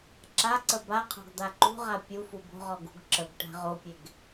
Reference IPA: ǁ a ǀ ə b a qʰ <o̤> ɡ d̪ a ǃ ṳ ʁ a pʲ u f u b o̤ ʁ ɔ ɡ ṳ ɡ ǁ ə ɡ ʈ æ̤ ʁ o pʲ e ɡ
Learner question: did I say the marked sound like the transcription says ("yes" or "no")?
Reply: yes